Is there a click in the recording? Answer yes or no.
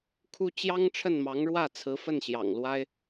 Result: no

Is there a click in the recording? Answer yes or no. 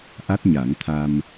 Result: no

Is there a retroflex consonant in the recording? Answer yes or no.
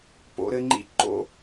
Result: no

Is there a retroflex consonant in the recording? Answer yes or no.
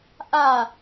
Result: no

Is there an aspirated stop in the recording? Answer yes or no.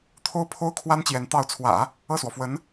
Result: yes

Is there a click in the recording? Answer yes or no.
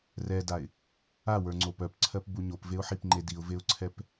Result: yes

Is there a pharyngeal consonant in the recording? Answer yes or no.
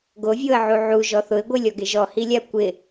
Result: yes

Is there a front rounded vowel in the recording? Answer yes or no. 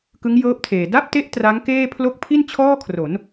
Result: no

